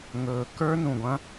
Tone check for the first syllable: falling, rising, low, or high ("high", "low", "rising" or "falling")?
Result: low